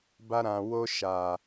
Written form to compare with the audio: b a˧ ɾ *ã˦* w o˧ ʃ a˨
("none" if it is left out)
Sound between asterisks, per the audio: ã˨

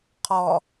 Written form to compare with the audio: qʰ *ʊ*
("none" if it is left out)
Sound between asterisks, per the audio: ɔ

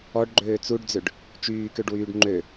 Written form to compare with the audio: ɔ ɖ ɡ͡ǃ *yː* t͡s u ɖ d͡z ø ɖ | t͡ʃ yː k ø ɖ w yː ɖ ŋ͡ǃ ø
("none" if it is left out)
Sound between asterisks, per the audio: øː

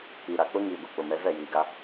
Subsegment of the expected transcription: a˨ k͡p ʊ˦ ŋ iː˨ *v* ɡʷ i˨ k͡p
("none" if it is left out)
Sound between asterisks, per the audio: none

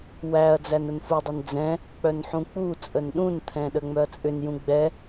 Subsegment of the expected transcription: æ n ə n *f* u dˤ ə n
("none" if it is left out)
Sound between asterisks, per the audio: f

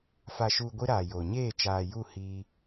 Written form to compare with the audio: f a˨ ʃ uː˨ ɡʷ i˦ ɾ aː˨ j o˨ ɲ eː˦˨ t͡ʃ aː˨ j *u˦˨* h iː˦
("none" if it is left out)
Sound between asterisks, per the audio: u˦˨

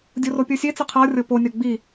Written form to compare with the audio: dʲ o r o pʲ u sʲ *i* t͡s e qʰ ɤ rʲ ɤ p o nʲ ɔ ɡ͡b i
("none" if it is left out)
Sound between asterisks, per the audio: e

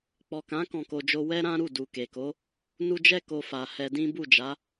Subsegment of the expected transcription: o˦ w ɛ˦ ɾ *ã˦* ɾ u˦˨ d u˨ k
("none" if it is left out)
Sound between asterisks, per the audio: ã˦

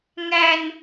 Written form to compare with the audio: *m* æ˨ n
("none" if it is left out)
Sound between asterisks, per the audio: ŋ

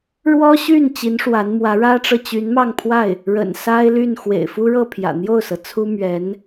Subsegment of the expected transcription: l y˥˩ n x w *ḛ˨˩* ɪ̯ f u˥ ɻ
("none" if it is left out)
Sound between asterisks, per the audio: ḛ˨˩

